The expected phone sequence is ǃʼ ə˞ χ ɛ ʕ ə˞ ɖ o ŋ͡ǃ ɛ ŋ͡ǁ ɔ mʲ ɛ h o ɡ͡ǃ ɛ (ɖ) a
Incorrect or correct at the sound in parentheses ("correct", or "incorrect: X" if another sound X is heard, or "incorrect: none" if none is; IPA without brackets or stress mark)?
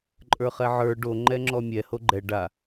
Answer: correct